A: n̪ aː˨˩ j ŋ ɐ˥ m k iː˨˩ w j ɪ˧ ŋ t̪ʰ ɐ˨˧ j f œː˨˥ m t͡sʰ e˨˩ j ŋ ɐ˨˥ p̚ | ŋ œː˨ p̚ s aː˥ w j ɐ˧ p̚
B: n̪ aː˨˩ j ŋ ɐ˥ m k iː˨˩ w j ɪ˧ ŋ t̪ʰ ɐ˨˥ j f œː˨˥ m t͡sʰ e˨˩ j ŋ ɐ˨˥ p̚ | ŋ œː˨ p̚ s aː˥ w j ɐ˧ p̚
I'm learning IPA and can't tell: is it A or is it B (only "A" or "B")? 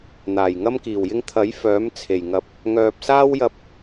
B